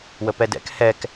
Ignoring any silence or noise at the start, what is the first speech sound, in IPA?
w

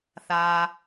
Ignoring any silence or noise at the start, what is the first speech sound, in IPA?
θ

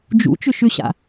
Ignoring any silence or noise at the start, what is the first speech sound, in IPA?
d͡ʒ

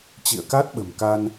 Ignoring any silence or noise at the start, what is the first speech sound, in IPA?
t͡ɕ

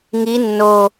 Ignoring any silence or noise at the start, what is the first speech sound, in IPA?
ŋ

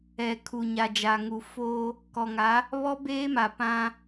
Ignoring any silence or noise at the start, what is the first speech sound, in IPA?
ɛ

